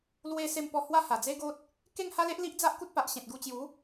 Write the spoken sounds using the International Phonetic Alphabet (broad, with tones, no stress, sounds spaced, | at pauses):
l w e˥˧ s e˥˧ m p ɔ˥˧ h w a˥˧ h a˨˩ d͡z e˦ ɡ o˦ t̚ | k e˥˧ ŋ h a˦ l e˦ ʔ l i˦ ʔ d͡z a˦ ʔ k u˦ t̚ p a˨ ʔ ɕ ẽ˨ t̚ ɡ u˧ t͡ɕ j u˨˦